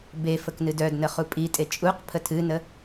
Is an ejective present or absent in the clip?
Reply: present